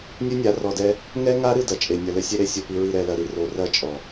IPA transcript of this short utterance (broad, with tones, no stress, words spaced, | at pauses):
nʲɨ˦nʲa˨˦ rɔ˨dɛ˦ | ŋɛ˦ŋa˦ɾɨ˦˨ dɐ˨t͡ʃʼe˨ nʲɐ˨lɘ˦sʲe˦ɾe˦˨ sʲo˨pi˨ɹi˨ ɾɛ˨lɐ˨ɾi˦ ro˨rɐ˦˨ t͡ʃʼɔ˨